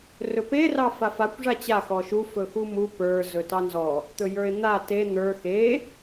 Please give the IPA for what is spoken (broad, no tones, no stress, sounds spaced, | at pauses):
r ɵ p e r ɑ f a f a kʷ ʐ a t͡ɕ a x ɔ ʃ u f ɵ x u m u p ə˞ z ɵ t ɑ n z ɔ | t̪ ɵ j ə˞ ɪ̯ n̪ a t e n̪ ə˞ x e